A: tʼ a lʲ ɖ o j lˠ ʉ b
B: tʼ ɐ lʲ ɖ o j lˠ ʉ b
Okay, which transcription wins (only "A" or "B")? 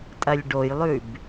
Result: B